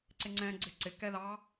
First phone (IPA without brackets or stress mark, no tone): ǀ